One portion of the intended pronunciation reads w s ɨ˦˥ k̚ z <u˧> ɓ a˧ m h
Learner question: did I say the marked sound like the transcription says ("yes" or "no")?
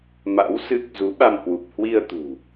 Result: no